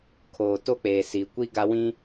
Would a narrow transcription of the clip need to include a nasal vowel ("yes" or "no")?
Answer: yes